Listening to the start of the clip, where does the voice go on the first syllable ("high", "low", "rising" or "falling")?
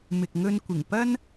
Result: low